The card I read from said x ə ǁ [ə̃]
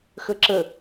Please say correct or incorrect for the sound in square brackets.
incorrect